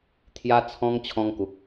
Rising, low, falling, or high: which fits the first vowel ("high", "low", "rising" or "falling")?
high